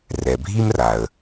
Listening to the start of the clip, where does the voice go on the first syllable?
low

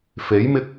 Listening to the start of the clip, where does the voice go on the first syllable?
rising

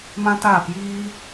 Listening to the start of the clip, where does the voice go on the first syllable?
high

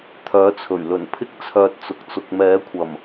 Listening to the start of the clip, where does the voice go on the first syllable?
rising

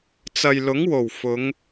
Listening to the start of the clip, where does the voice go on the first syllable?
low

